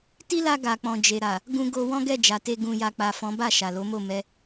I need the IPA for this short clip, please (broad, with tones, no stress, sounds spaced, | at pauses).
t i˦ l a˧ ɡ a˨ k͡p ɔ̃˨ d͡ʒ e˨ ɾ a˨ | ɡ ũ˧ ɡ o˧ w ɔ̃˦ ɡ ɛ˦˨ d͡ʒ a˨ t e˧ ɡ ũ˨ j a˨ k͡p a˨ f ɔ̃˨˦ b a˦˨ ʃ a˨ l o˨˦ m o˦˨ m ɛ˧